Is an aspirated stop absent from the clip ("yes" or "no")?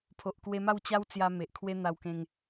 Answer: no